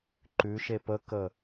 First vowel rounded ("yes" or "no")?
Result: yes